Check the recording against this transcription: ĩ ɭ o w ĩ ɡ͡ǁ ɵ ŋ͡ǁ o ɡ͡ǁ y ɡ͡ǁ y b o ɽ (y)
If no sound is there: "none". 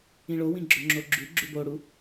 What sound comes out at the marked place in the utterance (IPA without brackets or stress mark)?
u